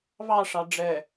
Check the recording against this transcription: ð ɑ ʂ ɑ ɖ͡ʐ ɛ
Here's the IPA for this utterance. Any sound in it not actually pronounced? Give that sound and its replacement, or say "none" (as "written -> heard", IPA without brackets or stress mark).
ð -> β